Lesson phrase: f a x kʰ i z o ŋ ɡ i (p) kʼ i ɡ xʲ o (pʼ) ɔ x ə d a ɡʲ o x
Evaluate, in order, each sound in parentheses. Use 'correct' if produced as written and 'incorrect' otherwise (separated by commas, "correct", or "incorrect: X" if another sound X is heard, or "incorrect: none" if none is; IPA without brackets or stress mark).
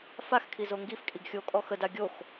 incorrect: f, incorrect: kʼ